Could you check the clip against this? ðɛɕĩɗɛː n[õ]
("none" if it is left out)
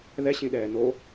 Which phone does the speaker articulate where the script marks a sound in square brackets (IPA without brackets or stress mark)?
o